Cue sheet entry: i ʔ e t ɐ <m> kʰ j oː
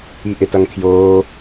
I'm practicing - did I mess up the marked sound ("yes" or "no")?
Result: yes